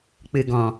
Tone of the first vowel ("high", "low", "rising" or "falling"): low